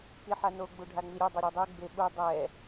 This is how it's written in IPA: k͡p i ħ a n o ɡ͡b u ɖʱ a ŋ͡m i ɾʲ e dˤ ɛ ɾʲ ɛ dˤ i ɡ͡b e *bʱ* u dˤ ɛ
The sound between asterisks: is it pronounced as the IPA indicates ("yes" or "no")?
no